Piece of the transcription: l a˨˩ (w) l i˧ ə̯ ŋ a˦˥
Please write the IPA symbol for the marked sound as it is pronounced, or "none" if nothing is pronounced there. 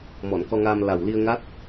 w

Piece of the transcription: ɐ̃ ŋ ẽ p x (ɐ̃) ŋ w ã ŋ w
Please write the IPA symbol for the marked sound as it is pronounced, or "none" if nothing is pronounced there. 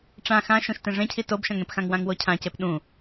ã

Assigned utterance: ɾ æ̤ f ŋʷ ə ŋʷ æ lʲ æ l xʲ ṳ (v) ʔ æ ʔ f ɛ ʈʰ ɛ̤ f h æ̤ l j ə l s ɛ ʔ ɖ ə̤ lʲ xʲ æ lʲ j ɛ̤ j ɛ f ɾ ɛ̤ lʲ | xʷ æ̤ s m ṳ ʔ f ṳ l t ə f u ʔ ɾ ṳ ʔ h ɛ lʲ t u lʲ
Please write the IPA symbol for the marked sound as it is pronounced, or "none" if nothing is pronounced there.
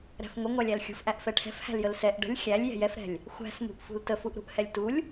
f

